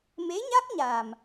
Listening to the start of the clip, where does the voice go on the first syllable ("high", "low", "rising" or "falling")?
rising